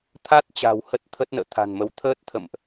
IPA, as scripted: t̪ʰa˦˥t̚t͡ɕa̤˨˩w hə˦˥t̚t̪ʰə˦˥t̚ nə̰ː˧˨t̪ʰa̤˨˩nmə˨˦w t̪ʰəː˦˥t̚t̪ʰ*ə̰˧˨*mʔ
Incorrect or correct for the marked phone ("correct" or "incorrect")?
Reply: correct